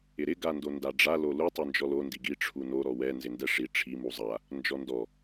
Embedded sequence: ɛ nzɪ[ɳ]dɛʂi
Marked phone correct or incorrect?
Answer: incorrect